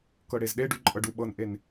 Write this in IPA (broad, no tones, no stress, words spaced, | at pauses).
kɤɽezɗeɖʉ ǃʼɤɖuɓɤnʔen